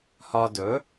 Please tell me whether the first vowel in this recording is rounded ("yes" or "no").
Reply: yes